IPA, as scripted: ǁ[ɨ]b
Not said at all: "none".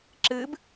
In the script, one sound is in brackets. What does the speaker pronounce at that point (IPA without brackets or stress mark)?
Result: ɨ